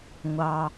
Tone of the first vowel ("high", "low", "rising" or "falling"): low